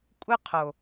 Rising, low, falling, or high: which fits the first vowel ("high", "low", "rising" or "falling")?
high